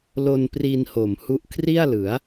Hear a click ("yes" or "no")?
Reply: no